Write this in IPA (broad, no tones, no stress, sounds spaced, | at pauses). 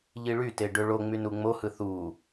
ʎ i ɭ y t e ɖ ø ɭ o ŋ͡m y n u ŋ͡m o h ɯ θ uː